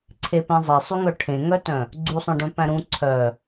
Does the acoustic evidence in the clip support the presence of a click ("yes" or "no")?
yes